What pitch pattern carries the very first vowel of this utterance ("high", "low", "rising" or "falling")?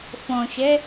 low